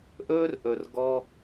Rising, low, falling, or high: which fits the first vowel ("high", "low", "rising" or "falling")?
high